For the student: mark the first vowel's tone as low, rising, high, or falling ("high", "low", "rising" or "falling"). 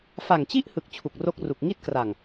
low